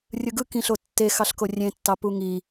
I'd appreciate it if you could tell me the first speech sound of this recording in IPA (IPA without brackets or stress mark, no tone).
rʲ